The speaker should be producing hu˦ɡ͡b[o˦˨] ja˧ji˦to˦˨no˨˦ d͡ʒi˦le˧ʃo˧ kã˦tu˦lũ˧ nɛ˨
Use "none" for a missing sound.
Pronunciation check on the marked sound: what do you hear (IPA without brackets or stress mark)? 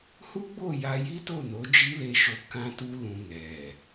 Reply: o˦˨